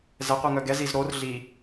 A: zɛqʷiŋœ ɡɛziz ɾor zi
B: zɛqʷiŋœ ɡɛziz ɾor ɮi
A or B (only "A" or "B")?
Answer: B